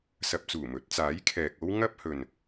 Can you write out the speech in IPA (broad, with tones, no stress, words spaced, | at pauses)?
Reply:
sɐ˨p̚t͡suː˨˩ mɵ˨˥t̚t͡saː˨˥jkʰɛː˨k̚o˥w ŋɐ˥p̚hɵ˨n